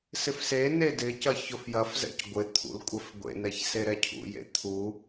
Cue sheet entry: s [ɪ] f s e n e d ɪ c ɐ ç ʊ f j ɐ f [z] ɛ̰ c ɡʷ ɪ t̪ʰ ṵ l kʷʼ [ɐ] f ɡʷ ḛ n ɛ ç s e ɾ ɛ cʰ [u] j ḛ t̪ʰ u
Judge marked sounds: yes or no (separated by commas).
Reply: yes, yes, yes, no